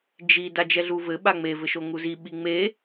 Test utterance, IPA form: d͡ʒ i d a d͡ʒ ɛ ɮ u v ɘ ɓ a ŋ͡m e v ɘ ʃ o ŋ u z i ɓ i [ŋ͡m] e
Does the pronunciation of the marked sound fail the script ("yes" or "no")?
no